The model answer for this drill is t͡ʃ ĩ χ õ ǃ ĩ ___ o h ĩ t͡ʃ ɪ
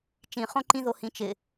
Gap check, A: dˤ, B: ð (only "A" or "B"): B